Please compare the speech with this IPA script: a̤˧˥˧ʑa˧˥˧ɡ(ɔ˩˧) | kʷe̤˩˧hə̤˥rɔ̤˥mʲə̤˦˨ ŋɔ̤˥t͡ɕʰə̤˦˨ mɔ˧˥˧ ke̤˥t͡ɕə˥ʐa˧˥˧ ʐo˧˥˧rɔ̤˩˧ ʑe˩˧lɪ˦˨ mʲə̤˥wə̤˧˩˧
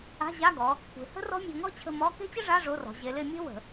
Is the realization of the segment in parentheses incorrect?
no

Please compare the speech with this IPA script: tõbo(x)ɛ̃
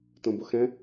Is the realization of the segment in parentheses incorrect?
no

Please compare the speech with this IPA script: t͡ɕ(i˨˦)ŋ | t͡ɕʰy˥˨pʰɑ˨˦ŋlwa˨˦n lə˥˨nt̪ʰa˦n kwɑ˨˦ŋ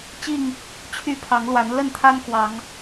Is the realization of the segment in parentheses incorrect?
yes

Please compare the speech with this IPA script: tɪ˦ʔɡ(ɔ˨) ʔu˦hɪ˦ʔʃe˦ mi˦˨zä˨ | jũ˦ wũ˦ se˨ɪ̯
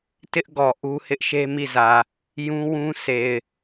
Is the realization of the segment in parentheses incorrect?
no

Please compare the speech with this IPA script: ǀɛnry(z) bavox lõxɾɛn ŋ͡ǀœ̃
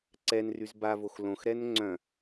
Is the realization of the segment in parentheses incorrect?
no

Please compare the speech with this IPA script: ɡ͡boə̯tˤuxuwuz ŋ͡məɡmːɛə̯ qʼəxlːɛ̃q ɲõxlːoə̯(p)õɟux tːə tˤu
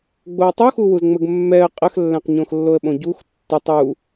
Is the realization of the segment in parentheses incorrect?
yes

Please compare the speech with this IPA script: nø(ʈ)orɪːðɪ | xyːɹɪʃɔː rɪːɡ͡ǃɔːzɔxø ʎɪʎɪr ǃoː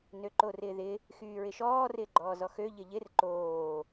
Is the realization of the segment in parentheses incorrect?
yes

